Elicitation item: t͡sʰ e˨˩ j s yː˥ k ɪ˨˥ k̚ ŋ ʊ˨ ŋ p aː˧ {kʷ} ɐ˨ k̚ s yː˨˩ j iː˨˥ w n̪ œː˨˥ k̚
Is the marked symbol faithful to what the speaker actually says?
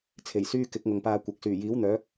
yes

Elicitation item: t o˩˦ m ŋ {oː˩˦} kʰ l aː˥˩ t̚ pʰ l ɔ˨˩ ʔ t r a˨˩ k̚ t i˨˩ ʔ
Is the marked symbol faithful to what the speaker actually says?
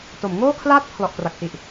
no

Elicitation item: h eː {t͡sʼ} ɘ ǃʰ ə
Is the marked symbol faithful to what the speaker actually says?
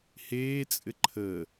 yes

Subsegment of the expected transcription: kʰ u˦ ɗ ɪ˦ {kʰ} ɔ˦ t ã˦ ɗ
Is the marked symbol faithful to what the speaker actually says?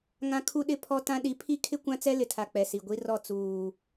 no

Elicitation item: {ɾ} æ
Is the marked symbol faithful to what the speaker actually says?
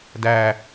no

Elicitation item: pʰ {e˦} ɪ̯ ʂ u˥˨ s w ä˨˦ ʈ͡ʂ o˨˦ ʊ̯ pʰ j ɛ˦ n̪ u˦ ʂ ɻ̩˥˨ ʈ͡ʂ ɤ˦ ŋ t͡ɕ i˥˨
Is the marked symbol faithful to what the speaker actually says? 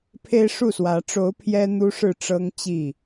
yes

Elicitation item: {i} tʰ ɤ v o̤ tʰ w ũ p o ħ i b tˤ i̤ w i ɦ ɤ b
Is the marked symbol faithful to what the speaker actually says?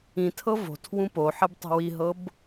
no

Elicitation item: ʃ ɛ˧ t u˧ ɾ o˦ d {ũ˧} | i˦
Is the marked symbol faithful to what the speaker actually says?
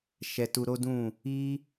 no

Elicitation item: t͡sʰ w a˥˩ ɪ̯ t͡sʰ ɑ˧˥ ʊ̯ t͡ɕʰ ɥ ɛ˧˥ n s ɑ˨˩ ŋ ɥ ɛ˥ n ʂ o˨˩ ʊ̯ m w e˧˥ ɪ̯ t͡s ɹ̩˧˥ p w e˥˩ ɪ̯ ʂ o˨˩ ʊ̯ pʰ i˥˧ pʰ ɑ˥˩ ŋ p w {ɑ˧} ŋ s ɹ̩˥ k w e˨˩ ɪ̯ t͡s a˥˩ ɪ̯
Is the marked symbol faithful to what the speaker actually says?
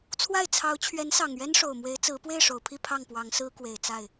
no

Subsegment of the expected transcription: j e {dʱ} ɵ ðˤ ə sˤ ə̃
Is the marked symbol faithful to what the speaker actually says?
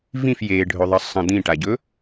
no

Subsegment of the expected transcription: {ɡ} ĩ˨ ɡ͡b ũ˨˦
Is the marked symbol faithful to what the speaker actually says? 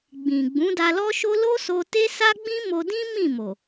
no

